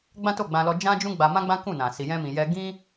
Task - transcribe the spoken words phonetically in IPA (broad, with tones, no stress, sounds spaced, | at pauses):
ɡ͡b ã˦ t o˦˨ ɡ͡b ã˧ l ɔ˧ d͡ʒ ã˦ d͡ʒ ũ˦ ɡ͡b a˧ m ã˦ ɡ͡b ã˦ k ũ˦˨ n ã˨ s i˨ j ɛ̃˧ m ĩ˨ j ɛ˧ ɡ ĩ˦